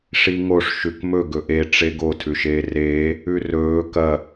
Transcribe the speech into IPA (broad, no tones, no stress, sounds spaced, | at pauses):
ʂ i ŋ o ʂ ʃ ʉ k m ɵ ɡ ɵ ʔ e ʈ͡ʂ e ɡ o tʰ ʉ ʃ eː r eː | ʉ r ɵː k ɐ